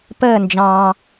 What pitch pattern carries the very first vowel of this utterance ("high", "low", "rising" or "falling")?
falling